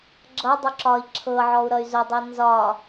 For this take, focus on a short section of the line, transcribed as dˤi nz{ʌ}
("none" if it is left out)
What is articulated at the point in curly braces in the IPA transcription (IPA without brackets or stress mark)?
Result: ɒ